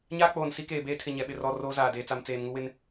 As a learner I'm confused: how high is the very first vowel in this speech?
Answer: low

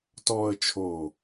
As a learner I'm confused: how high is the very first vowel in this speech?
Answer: mid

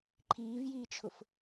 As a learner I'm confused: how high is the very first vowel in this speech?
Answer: high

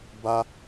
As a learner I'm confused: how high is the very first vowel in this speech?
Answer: low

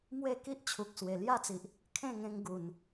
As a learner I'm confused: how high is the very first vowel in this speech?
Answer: mid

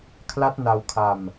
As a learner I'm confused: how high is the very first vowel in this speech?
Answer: low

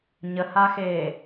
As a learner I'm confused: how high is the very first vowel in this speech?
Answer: mid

